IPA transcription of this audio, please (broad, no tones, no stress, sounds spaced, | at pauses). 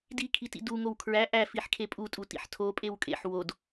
d i kʰ i t ḭ d u ŋ o w kʰ ɹ æ ʔ æ f i ħ kʰ e pʼ u tʼ u t ḭ ħ tʰ o pʼ e w kʼ ḛ ħ w o d